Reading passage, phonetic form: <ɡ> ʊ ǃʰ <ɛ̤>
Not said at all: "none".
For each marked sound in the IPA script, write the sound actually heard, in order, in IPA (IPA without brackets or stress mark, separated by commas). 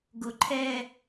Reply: ɡ, ɛ